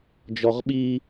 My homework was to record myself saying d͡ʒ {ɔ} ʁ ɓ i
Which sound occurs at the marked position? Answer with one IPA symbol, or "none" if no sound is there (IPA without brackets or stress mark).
ɔ